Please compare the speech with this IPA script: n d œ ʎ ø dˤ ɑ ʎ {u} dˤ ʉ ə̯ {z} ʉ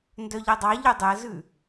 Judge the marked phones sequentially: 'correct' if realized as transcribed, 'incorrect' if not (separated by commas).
correct, correct